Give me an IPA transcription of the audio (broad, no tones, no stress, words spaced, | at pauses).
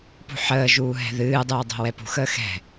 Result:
pṳħəːʒuː ɦɛ̤ðɨːdˤɨː dˤɛ̤wɛpṳxəː xɛ̤